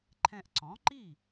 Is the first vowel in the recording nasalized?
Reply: yes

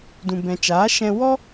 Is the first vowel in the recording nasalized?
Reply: yes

